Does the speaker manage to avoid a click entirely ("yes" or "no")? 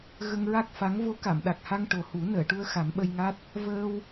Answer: yes